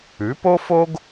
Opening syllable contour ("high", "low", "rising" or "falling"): rising